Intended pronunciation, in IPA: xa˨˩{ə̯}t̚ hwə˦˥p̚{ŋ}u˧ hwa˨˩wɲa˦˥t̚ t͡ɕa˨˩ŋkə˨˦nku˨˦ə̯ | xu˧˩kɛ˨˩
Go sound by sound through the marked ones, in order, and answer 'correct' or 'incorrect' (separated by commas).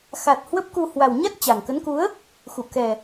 incorrect, incorrect